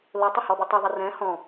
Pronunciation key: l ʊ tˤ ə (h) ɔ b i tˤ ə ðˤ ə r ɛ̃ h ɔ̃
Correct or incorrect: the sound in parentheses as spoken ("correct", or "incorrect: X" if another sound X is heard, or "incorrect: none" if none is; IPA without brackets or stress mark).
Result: correct